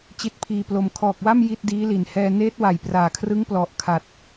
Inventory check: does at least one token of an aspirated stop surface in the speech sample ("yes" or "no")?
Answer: yes